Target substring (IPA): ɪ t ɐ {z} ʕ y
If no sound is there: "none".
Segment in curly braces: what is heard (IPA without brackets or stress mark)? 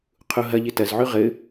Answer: z